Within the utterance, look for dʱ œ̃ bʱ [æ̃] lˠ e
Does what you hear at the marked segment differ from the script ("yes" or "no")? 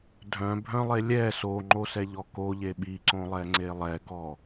yes